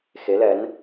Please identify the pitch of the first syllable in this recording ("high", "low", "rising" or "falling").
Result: rising